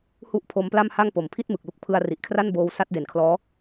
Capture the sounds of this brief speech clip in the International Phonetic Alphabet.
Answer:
h u˥˩ ʔ pʰ o˦˥ m p l a˥˩ m h a˥˩ ŋ p o˩˦ m pʰ i˥˩ t̚ m ɯ˨˩ k̚ l u˦˥ k̚ pʰ ɯ˧ a̯ r i˨˩ ʔ kʰ r a˥˩ n b oː˦˥ w s a˦˥ t̚ d e˨˩ n kʰ l ɔː˦˥

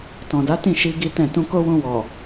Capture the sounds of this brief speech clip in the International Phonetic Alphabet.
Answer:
t ɔ̃˨ d a˨˦ t ĩ˦˨ ʃ i˧ ɡ i˦ t ɛ̃˦˨ t ũ˧ k o˦ w ũ˧ w ɔ˨

